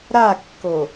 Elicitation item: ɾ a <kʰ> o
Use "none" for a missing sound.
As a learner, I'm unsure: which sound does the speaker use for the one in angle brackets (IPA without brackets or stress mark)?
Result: kː